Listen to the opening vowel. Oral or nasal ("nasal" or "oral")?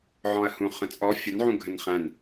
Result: nasal